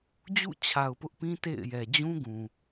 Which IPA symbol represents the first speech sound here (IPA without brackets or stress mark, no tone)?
d͡ʑ